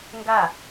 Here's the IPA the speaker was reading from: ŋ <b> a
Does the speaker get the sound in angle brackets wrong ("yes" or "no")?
yes